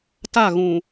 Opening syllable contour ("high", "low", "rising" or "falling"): falling